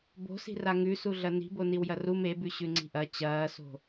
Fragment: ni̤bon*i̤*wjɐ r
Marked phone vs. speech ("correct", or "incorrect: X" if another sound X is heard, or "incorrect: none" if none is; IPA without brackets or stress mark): incorrect: i